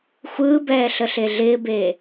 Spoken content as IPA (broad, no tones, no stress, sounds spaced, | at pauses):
xʷ ɯː b ɛː ɬ ə ɬ e ɮ ɪː b eː